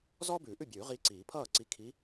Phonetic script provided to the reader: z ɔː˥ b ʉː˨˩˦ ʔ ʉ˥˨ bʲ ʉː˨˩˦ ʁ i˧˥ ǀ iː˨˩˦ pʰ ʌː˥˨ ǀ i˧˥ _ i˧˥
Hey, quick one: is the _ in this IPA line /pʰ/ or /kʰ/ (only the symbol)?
kʰ